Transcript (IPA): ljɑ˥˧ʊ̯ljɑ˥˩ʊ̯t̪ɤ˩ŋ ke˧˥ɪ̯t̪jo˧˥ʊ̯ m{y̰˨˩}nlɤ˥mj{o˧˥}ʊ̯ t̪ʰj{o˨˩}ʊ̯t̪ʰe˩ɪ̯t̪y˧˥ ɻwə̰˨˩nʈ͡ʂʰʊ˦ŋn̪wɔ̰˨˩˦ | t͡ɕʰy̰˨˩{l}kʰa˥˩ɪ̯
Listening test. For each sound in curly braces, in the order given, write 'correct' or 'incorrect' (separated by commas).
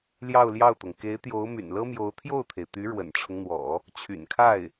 correct, correct, incorrect, incorrect